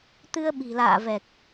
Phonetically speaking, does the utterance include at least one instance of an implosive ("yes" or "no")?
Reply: yes